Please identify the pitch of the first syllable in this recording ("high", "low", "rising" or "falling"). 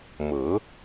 rising